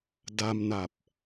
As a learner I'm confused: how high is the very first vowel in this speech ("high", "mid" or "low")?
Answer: low